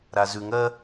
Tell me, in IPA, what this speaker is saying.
ɾ a z ʉ ŋ ɜ

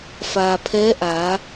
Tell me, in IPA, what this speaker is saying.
f aː˩ pʰ ɛː˧˥ ʔ aː˩˧

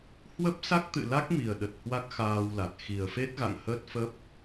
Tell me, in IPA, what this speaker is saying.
h w ə˦˥ p̚ s a˦˥ k̚ t̪ ɨ̰˧˨ l a˦˥ k̚ m i˨˩ ə̯ ɗ ə˨˩ t̚ h w a˦˥ k̚ x aː˧ w l a˨˩ t̚ x i˨˩ ə̯ f e˦˥ t̚ ɣ a̰˧˨ ŋ h əː˦˥ t̚ f ə˦˥ p̚

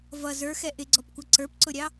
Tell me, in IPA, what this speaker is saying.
v ʌ z ə˞ x ɛ ʔ ɪ ɡ͡ǀ ɔ p kʷ ʌ ǀ ə˞ p ǀ ʊ ɾʲ ɑ

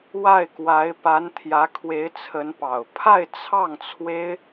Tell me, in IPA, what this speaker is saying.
w a˥˩ ɪ̯ k w a˧˥ ɪ̯ p a˧˥ n t̪ʰ j ä˧˥ kʰ w e˧˥ ɪ̯ t͡sʰ ə˧˥ n p ɑ˨˩ ʊ̯ pʰ a˥˧ ɪ̯ t͡sʰ ɑ˥˩ ŋ t͡sʰ w e˥ ɪ̯

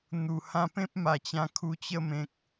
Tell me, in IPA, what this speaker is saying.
n̪ u˨˩ h ã˥˧ p ẽ˦ p̚ m a˨˩ t͡ɕ ã˧ kʰ u˧ t͡ɕ ə˥˧ m ẽ˨ k̚

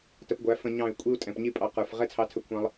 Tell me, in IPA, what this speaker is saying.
t ə˧ p ɡʷ æ˨˦ f ə̃˧ ɲ ɑ̃˦˨ y̯ kʷʼ i˦ u̯ tʼ ɛ̃˨ p ɲ i˦ pʼ ɑ˧ q ə˞˨ f ʁ ɛ˦ t͡sʰ ɑ˧ tʰ ə˧ kʷʰ ɑ̃˧ lˠ

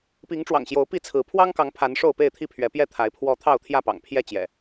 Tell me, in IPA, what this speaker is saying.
p i˨˦ ŋ ʈ͡ʂ w ɑ̰˨˩ ŋ ɕ j o˨˦ ʊ̯ p i˥˨ t͡sʰ ɹ̩˨˦ pʰ w ɑ˦ ŋ k ɑ˨˦ ŋ pʰ a˨˦ n ʂ o˥˨ ʊ̯ p e˥˨ ɪ̯ t̪ʰ i˥˨ pʰ ɥ ɛ˨˦ p j ɛ˥˨ t̪ʰ a˨˦ ɪ̯ pʰ w ɔ˨˦ t̪ʰ ɑ˥˨ ʊ̯ t̪ʰ j ä˥˨ p ɑ̰˨˩ ŋ pʰ j ɛ˥˨ t͡ɕ j ɛ̰˨˩

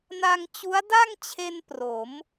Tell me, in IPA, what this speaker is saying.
n a˧ ŋ t͡ɕ u˦˥ a̯ d a˥˩ ŋ t͡ɕʰ e˧ n p r o˩˦ m

